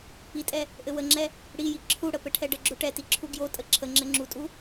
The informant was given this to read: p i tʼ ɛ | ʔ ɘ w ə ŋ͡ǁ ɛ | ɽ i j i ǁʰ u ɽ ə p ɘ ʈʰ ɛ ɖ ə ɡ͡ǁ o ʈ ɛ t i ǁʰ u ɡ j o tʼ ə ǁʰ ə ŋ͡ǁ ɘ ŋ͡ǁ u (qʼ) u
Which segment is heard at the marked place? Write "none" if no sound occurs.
tʼ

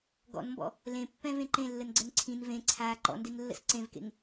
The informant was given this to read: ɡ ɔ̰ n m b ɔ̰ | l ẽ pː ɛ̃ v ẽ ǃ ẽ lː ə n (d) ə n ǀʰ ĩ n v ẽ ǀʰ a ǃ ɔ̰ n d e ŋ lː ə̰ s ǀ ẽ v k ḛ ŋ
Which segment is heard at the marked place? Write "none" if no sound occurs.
ɡ͡ǀ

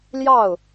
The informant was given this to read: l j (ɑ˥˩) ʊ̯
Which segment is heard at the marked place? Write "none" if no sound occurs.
ɑ˥˩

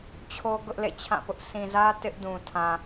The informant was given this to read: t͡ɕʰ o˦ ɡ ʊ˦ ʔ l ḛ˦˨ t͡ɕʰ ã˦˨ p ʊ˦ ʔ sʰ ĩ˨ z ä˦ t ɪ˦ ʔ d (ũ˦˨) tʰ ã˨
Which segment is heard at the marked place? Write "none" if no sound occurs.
ũ˨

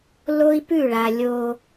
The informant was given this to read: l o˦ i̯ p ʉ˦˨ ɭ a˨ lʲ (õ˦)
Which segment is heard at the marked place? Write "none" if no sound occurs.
o˦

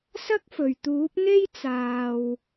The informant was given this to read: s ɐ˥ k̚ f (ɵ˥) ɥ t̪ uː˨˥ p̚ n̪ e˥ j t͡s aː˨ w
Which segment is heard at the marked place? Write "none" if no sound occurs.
ɵ˨˩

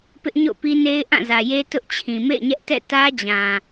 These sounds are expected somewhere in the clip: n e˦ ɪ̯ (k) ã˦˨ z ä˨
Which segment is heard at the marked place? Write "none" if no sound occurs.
ʔ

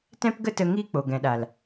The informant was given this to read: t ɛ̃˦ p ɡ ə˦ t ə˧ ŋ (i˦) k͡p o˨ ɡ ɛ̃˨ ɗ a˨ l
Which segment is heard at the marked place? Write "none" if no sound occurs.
i˦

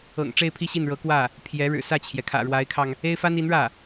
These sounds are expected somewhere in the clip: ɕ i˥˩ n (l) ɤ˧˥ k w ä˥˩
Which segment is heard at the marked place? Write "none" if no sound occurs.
ɻ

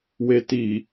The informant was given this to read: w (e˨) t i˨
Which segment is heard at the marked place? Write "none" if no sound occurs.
e˨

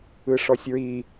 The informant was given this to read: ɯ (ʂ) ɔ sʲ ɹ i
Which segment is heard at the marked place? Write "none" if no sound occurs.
ʂ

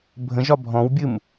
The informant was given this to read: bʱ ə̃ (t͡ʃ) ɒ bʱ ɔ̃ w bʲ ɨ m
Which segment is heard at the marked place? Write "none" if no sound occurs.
ʒ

